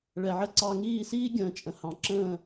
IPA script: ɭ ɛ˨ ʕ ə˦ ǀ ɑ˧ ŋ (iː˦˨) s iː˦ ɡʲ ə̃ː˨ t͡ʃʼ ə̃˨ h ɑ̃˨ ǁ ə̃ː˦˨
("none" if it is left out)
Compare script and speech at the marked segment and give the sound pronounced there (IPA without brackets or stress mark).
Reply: iː˦˨